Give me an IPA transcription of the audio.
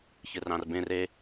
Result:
ç ɨ r ɑ̃ r b ẽ r e

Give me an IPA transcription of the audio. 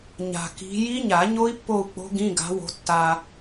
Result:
ɲ a̤˨ k i̤˨˦ j i˦˥ ɲ a˨˩˦ ɲ o˦˥ i̯ pː o˦˨ u̯ k͡p o̤˦˥ ɡ ĩ˧˥˧ ɡ a̤˨˦ w o̤˨˦ tː a˨

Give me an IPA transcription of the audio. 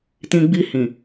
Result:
t ĩ˧ ɡ͡b i˧ h ĩ˨

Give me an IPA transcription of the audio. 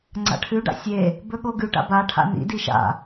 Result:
ŋ͡ǀ a̰ ʈʰ ʉ ɖ a̰ sʲ e | b ɵ ɠ o ɡ ʉ ʈ a̰ b a ʈʰ a̰ n ḭ d i ʃ a̰

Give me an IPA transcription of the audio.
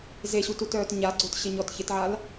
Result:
z e ɕ u t u t œː t ɲ a ɡ͡ǀ o t ɕ ɪ ɲ ɔ t ç ɪ t ʕ a l

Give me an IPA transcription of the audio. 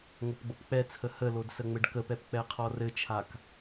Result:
ŋ o p ɡ͡b o p k͡p ɛ t͡sʰ ə h ə l o d s ə ŋ͡m ɘ ɖ k ə p ɛ p k͡p ɛ qʰ ɔ r ɘ t͡ʃʰ a k

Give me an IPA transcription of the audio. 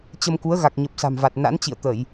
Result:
t͡ɕ ə˧ m k u˨˦ ə̯ ɣ a˨˩ k̚ ɲ ə˨˩ p̚ s a̤˨˩ m v a˨˩ t̚ n a̰˧˥ n t͡ɕ ḭ˧˨ ə̯ t̪ ə˧˩˨ j

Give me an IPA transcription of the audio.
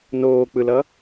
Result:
n oː k͡p ɯ l ʌ

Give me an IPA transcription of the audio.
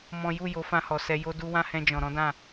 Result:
m ɔ̃˦ j u˦˨ j o˨˦ f ã˧ h ɔ˨ s ɛ˧ j o˦ d u˦ w ã˦ h ɛ̃˧ d͡ʒ ɔ̃˨ ɾ ɔ̃˨˦ d ã˦˨

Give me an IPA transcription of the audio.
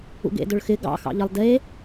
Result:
ṵ ɡ ḛ d ʊ ɭ x ɪ ɡ ɑ̰ x ɑ̰ ʎ ə lˠ d e

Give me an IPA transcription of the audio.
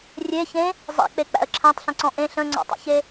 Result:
rʲ e ç ẽ | zˤ ḛ k͡p e k͡p æ̰ ə̯ ǁʰ æ̃ tˤ ɬ ə̃ ǀ ɔ̃ ʔ ẽ ɬ ə̃ ŋ͡ǀ ɔ̰ tˤ ḛ ç e

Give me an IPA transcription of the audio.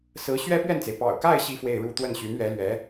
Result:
s ɹ̩˧˥ ɕ ɥ ɛ˥ p ɥ ɛ˥˩ n t͡s e˩ ɪ̯ p ɑ̰˨˩ ʊ̯ k a˥˧ ɪ̯ ɕ i˥˧ f w e˥˧ ɪ̯ ɻ u˥˧ t̪ w ə˥˩ n ɕ y˧˥ n ɥ ɛ˧˥ l ɥ ɛ˧˥

